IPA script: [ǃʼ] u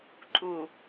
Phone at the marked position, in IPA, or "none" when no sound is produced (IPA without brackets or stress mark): ǃʼ